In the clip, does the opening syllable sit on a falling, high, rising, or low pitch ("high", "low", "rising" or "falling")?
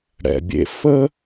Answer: low